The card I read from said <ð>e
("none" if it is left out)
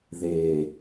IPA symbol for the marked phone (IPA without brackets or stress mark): ð